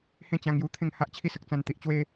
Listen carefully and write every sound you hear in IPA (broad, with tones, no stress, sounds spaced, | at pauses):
h ẽ˥˧ t͡ɕ ã˧ ŋ j u˧ t̪ʰ ẽ˥˧ ŋ h a˦ ʔ t͡ɕʰ i˥˧ s ə˨ k̚ t͡s ã˧ n t̪ i˨ ʔ t͡ɕ w e˦